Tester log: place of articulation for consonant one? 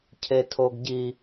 palatal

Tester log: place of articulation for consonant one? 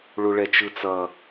retroflex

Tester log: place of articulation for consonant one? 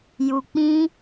palatal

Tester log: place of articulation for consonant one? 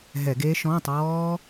glottal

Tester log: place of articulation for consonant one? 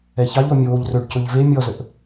palatal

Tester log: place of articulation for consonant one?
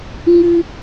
velar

